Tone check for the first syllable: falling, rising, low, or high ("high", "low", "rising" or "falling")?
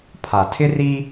low